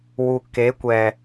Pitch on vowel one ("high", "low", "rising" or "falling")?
low